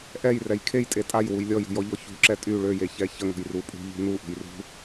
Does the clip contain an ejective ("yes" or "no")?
yes